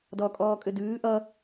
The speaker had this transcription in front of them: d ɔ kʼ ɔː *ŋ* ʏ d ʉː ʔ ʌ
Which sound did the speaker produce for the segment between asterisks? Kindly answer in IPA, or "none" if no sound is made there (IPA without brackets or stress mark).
kʼ